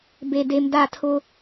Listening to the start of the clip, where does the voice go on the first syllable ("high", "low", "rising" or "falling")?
low